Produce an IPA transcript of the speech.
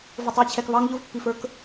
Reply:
v ʊ˧˩ tˤ i˨˥ t͡ɕʰ ɛ˧ k β ɑ˦˥ ŋ ʎ ʊ˦˥ v pː i˧ f ə˞˦˥ k

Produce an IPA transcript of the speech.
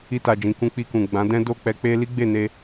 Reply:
i˧ t a˨ d͡ʒ ĩ˨ k ũ˧ k͡p i˧ k ũ˨ ɡ͡b ã˨˦ d ɛ̃˦ d o˦˨ k͡p ɛ˧ k͡p e˦ l i˦ ɡ͡b e˦˨ n e˧

